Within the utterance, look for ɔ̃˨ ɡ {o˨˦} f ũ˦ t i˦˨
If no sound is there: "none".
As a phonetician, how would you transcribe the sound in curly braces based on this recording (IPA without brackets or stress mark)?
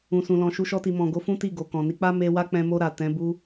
o˨˦